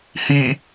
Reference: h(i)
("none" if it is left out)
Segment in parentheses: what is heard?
i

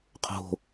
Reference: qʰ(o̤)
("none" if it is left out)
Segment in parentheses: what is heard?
o̤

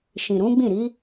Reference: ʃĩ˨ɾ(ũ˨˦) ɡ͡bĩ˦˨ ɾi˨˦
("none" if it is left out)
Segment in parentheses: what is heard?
ũ˨˦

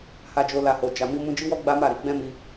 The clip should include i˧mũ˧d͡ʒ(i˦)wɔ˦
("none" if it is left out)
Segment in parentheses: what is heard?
i˦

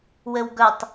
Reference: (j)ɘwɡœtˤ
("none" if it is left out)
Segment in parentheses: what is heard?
w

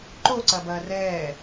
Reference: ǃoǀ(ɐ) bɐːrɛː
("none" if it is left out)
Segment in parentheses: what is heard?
ɐ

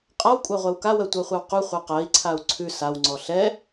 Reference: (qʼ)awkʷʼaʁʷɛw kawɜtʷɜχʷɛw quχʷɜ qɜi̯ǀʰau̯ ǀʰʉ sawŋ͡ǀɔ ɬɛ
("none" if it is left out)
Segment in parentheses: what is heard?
qʼ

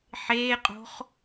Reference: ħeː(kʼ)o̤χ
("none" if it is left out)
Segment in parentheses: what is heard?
qʼ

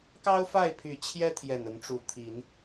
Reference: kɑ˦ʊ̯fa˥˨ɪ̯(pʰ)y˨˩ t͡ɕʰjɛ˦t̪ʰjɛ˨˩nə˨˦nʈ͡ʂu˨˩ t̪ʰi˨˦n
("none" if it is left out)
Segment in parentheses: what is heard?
pʰ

